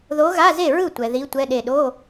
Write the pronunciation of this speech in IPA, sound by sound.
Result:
ð o˧˥ ɣ a˧˥˧ z e˥˩ ɹ ɯ˥˩ tʷ ɛ˨ ð i˧˥ tʷ ɛ˧˥˧ ɗ e˥˩ ɗ o˧˥˧

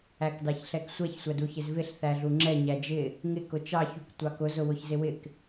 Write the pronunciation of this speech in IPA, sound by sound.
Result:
æ k d ɑ ç ɬ ɛ k sʷ ɛ ç sʷ æ d u ç ɪ z v ɪ ɬ θ æ ɮ u ŋ͡ǁ ɛ ɲ æ d͡ʒ ɪ | ŋ ɪ k ʊ t͡ʃ ɑ ç u k tʷ ɑ k ʊ z ʊ w ʊ ç z ɪ w ɪ k

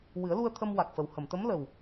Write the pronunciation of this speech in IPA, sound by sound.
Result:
w ɨ˨˩˦ ə̯ l u˧ ə̯ t̪ʰ ə˧ m w a˨˩ k̚ f ə˨˩ w h ə˨˩˨ m t̪ ə˧˥ m l ə˨˩ w

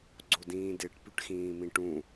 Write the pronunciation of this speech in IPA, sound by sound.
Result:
ɡ͡ǀ o d ĩː d e ʈ p y ʈ x ĩː m ĩ ʈ ũ

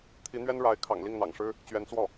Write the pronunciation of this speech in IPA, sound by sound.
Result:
t̪ʰ i˧˥ n̪ ɥ ɛ˥ n ɻ a˧˥ ɪ̯ kʰ ɑ̰˨˩ ŋ l i˥˩ ŋ n̪ ɑ̰˨˩ ŋ ʂ ɻ̩˥ | t͡ɕ ɥ ɛ˧˥ n t͡s w ɔ˥˩

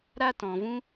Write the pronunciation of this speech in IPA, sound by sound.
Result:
ɾ a˦ t ɔ̃˧ v ũ˦

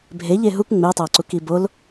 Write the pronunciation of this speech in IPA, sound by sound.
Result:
bʱ e ʎ e ɦ u k ŋ͡m e tˤ æ ǀ u k i b o l

